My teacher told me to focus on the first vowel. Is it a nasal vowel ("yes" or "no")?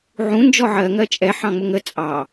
yes